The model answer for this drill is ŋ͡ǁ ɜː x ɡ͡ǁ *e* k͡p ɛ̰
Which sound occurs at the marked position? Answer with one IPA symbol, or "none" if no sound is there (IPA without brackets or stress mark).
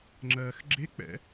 e